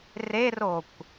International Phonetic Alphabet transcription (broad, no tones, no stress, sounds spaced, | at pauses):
r e r o kʷ